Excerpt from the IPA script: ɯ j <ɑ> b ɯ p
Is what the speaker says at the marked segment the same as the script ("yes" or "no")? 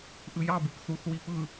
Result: yes